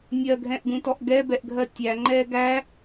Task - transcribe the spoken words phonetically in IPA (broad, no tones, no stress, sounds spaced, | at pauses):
nʲ ɜ ɡʱ ɛ̃ ʔ ɡ ũ t ɔ ʔ ɡ ɛ b ɛ ʔ ɡʱ ɜ tʲ æ ŋ͡ǃ ɛː ɡ æ